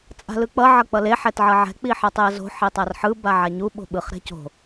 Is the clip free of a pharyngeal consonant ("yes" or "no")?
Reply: no